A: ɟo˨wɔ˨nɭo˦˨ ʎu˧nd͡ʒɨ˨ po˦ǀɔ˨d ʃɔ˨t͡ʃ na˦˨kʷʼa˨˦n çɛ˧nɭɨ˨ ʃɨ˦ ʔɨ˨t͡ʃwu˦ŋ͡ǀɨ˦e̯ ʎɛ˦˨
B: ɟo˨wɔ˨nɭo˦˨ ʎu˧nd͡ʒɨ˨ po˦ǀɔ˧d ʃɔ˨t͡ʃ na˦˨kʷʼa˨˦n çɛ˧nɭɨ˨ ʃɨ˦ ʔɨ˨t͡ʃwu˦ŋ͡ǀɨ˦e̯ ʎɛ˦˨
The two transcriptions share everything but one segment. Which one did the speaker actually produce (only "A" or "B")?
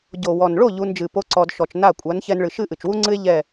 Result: B